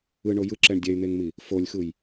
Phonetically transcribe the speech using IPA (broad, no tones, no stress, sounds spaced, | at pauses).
ɯ ɳ o j ɯ ǁ ɛ ɳ dʲ ɛ y̯ n̪ e ŋ m i | f o lʲ x ɯ j